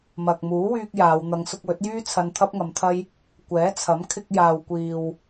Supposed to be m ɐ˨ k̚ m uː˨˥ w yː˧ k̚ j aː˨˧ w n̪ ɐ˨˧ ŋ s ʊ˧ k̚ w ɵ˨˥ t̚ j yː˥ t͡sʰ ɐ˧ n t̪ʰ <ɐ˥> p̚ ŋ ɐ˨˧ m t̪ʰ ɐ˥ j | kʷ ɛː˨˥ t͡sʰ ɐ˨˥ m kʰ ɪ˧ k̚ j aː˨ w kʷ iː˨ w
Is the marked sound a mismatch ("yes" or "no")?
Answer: no